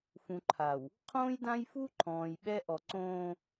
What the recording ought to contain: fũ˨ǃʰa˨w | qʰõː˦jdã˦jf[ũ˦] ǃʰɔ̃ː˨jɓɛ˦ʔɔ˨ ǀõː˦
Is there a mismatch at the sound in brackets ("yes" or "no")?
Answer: yes